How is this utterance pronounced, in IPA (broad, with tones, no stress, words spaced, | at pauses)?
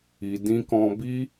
i˧dĩ˦kɔ̃˦ bi˦